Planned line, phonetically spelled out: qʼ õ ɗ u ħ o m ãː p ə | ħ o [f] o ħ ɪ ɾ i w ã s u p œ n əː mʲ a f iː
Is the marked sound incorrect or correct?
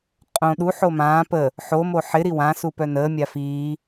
incorrect